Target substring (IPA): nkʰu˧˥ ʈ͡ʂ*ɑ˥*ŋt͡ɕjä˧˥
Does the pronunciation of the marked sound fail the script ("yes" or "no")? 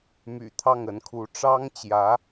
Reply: no